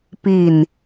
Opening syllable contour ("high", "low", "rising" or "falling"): falling